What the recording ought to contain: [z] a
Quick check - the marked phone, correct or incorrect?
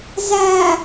correct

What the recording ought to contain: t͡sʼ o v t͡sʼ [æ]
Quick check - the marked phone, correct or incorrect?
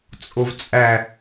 correct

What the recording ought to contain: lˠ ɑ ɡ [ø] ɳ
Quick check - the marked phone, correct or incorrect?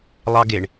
incorrect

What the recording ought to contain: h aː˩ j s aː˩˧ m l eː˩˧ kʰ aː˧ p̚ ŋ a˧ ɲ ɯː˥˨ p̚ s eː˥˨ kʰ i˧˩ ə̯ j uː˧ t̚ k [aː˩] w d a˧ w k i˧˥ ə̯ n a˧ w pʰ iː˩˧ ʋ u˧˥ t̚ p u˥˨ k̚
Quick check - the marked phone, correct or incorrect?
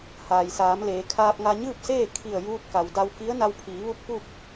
incorrect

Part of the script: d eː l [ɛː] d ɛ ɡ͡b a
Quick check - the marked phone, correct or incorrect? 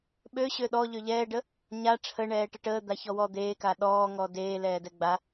correct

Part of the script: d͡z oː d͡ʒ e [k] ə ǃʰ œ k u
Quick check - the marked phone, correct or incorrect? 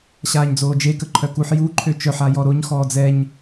correct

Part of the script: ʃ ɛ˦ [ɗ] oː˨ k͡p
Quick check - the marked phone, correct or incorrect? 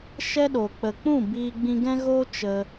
correct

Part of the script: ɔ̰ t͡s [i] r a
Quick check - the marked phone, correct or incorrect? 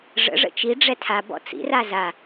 incorrect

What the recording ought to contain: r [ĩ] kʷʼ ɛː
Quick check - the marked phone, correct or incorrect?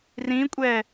correct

